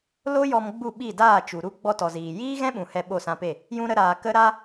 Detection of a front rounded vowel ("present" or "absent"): absent